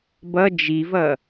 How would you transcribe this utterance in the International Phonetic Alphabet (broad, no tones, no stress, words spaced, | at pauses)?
bʌ d͡ʒivʌ